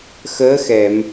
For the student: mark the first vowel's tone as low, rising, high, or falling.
rising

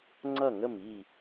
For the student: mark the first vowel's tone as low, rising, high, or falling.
falling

